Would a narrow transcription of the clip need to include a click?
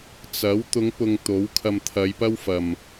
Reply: no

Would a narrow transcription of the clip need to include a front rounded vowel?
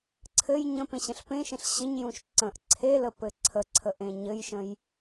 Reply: no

